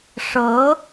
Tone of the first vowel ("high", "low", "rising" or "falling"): rising